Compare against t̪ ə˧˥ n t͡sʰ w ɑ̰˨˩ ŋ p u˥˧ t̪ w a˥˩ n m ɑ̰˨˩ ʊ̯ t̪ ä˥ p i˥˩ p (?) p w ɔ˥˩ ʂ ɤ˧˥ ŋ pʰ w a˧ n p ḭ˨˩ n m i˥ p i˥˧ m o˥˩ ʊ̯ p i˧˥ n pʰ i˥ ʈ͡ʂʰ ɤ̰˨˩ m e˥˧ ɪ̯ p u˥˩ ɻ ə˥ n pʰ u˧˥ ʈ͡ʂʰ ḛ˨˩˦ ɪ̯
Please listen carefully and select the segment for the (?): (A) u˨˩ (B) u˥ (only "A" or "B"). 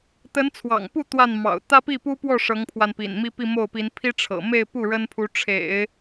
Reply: B